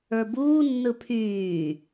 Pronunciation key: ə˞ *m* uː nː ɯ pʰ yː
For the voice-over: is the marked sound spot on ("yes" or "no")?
no